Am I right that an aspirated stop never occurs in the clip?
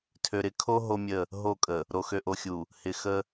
no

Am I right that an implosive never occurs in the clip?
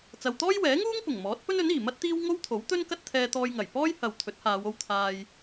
yes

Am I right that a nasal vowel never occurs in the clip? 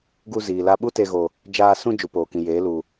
no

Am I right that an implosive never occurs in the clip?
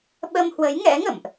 no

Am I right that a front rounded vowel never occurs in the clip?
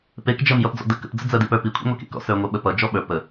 yes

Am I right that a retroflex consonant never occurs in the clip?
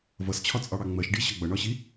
no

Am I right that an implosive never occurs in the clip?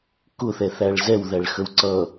yes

